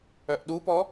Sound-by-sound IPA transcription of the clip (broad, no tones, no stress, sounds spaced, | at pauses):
œ ʔ ɗ u p ɔ